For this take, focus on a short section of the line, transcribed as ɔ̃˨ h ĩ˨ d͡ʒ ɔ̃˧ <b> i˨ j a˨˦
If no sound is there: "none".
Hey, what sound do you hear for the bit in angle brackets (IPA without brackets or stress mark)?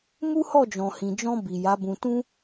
b